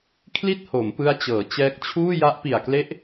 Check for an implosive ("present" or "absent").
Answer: absent